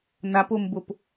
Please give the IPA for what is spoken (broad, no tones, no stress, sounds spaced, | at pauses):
n a p o m b o p